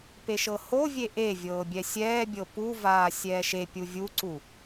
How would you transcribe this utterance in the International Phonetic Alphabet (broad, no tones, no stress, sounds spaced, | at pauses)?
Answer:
p e ʃ ɤ h o vʲ e ʔ e vʲ ɤː bʲ ɛ sʲ ɛː bʲ ɤ p u v aː sʲ ɛː ʃ e pʲ u vʲ u ǀ u